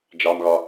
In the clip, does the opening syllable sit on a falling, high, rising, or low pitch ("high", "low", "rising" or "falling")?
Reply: low